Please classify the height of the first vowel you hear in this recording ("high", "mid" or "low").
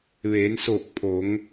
mid